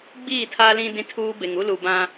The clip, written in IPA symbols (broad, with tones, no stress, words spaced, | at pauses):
ɡ͡biː˦˨tʰa˦lĩ˦ dĩ˦tʰuː˦be˨ŋ u˦lu˨bã˦